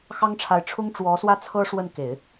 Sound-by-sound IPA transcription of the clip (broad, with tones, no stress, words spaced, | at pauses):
xɑ˥ŋʈ͡ʂʰa˧˥ɪ̯ ʈ͡ʂʰʊ˥ŋ ʈ͡ʂwɔ˧˥swä˥t͡sʰɤ˥ ʂwə˥˩nke˨˩˦ɪ̯